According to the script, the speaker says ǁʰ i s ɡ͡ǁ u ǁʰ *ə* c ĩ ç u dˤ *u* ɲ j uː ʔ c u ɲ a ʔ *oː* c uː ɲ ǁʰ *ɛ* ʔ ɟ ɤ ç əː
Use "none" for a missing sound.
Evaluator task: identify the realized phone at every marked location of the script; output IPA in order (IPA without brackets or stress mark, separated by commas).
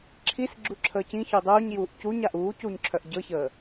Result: əː, uː, uː, œ